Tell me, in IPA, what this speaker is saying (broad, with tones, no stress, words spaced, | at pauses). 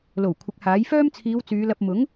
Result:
lo˨˩w kʷʰɪ˨˥k̚haː˨˥j fœː˥mt͡sʰiː˨˧w t͡syː˨˧lɐ˧p̚ mʊ˨˥ŋ